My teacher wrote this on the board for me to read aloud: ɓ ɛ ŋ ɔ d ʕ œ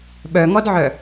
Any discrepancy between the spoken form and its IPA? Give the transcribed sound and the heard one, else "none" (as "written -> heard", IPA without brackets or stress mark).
ɛ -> œ